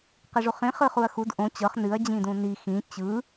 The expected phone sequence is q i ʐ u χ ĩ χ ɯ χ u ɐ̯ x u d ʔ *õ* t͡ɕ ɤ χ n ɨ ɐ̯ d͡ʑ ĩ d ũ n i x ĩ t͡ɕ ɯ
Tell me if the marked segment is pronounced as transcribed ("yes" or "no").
yes